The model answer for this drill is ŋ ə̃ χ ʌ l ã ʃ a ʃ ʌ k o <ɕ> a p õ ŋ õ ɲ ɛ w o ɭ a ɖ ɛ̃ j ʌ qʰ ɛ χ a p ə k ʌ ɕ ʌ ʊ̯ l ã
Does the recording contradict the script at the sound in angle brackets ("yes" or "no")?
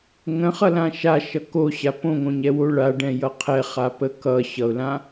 no